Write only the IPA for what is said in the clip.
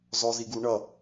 z ɔ z i ɡ u ɳ ʌ

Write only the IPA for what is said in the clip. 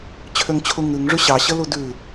t͡ɕʰ ø ŋ t͡ɕʰ u ŋ ʉ ŋ ʐ ʉ ɕ ɑ ɕ ə l u d ʉ

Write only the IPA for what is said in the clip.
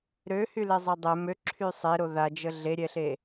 ɾ ø h y l ɛ zˤ ɛ dˤ ɛ m ø ǁʰ y sˤ e ɾ o ð a d͡ʒ ə ɮ e ɾʲ ɛ ɬ e

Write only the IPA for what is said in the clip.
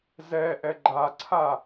z ɛ ʔ ɛ ɡ͡ǃ a ǀʰ a

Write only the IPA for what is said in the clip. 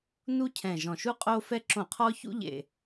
n u˦ cʰ ɛ̃˨˩ ʒ ɔ̃˨˩ ʃ u˦ qʼ o˦ f ɛ˦ ǁ õ˧˩˧ qʰ ɔ˦ ç ṵ˦ ʎ ḛ˨˩

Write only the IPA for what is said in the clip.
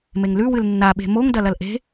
m e ŋ l ʉ w ɨ l nː a ɓ e̤ m o ŋ d ɐ l ɐ l ʔ e̤

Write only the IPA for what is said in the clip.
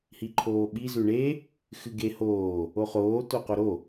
h i ǃʰ oː ɓ i z ʉ ɳ e | x ɨ ɡ e h oː | o χ oː t o q o ɾ o

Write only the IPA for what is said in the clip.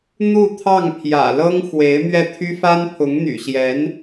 n̪ u˥˧ t̪ʰ ɑ˥˩ ŋ pʰ j ä̰˨˩ l ɤ˥ ŋ x w e˧˥ ɪ̯ m ɥ ɛ˥˩ t̪ʰ y˥ f a˥ n pʰ ʊ˧˥ ŋ n̪ y̰˨˩ ɕ j ɛ˧˥ n

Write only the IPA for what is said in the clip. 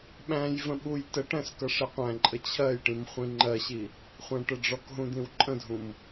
ɓ æ̃ j v ə̃ ɓ u j t ə ʈ æ̃ s k ʌ ʂ ɪ qʷ æ̃ ǃʼ ə t͡ɕʰ ɜ j ʈ ĩ m χʷ ĩ ŋ͡ǃ ɜ ɕ i | χʷ æ̃ ʈ ə ɖ͡ʐ ɔ k ɦ ũ d̪ ĩ w ǃʼ ə̃ dʱ ũ m

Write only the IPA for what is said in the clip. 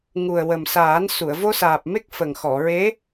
ŋ u˨˩ ə̯ w ə˨˩ m s aː˨˩˦ n s u˨˩˨ ə̯ v o˧ s aː˨˩ p̚ m e˦˥ k̚ f ə˨˩ ŋ x ɔ˨˩˨ ɹ e˧˥

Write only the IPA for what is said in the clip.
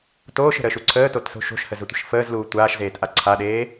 t oː ʃ ə̤ ɾ əː ʃ u ǀʰ əː t o t s o̤ ʃ o̤ ʃ h ə z ə tʷ ə̤ ʃ f əː z l uː tʷ aː ʃ z eː t ʔ a ǀʰ a ɗ eː

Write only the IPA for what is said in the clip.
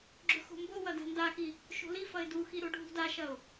ɡ͡ǁ ɵ x o̤ m b o w ɐ d a̤ n d a x i | ʃ o̤ l i f ɐ ɪ̯ d u x i ɾ o ɖʱ ṳ d a ʃ ɐ ʊ̯

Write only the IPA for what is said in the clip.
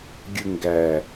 ɡʲ ɯ ŋ ɡ æ

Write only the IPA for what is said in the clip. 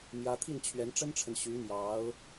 m j ä˥ t̪ʰ i˥˩ n t͡ɕʰ ɥ ɛ˧˥ n ʈ͡ʂ ə˥ n ʈ͡ʂʰ ə˨ n ɕ y˧˥ m j ɑ˧˥ ʊ̯

